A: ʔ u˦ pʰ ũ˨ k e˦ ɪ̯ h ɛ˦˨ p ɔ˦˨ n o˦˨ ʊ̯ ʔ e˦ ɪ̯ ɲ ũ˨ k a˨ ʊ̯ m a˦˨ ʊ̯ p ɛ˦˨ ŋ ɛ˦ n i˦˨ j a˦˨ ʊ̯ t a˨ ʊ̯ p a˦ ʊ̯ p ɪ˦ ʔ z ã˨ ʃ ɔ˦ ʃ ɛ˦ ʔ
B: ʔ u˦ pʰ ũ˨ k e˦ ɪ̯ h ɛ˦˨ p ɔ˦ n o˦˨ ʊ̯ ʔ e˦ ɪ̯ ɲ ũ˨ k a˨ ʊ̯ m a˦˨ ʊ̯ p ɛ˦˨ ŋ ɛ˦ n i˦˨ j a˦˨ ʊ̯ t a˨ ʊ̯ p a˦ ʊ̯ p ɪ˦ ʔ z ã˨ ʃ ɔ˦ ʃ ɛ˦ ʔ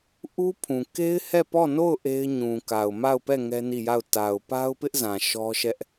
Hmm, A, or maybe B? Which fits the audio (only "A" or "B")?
A